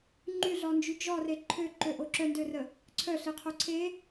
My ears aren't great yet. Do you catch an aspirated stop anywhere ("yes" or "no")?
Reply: yes